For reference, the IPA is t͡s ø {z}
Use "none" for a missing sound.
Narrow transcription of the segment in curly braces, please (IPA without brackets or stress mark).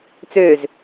z